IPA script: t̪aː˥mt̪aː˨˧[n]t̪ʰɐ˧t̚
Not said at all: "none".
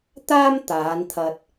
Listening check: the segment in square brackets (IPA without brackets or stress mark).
n